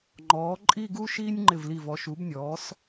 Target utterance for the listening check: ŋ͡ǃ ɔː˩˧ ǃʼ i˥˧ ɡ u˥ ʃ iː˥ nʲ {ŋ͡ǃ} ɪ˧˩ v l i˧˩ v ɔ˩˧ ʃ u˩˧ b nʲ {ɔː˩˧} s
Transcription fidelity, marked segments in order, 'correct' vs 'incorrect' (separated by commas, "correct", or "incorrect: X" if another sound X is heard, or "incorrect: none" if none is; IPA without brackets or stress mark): correct, correct